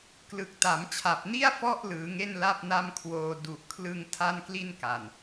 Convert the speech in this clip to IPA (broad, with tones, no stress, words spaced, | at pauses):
klɯ˨˩k̚ta˩˦mt͡ɕʰa˨˩p̚ni˥˩a̯ fɔ˥˩ʔ lɯː˩˦ŋe˥˩n la˥˩p̚na˥˩mkʰwoː˧ du˨˩ʔkʰlɯ˧ŋ tʰa˥˩nkli˥˩nka˨˩n